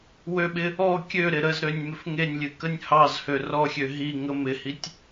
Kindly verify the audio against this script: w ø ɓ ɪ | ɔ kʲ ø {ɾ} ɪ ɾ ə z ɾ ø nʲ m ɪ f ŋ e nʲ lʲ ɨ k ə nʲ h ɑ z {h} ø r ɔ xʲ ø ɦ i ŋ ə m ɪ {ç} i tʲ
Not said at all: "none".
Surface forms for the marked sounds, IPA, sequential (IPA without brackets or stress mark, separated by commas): ɾ, h, h